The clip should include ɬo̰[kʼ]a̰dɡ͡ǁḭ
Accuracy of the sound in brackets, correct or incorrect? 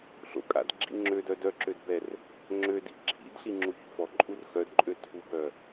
correct